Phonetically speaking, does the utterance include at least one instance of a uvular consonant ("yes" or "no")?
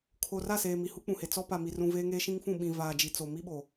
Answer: no